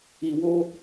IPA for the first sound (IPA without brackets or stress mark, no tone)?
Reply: i